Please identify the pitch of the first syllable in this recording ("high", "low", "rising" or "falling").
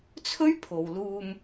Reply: high